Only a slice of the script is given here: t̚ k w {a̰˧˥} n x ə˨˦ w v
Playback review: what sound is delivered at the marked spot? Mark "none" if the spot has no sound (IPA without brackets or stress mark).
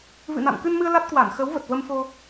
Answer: a˧˩